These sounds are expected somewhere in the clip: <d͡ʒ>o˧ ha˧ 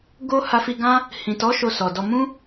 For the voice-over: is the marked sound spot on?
no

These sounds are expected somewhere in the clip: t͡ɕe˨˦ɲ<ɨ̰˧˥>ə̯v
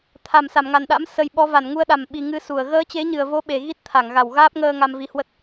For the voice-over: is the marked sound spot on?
no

